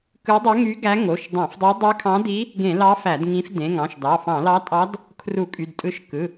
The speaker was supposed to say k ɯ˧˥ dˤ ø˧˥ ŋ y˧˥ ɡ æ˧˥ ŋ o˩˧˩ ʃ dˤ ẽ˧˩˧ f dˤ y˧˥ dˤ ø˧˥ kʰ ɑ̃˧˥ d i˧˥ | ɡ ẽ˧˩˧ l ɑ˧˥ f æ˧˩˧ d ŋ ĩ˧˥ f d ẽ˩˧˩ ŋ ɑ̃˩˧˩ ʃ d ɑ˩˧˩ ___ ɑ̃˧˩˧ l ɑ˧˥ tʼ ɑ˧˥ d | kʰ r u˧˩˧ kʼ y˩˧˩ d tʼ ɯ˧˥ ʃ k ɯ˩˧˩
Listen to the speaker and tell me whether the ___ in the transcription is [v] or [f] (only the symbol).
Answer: f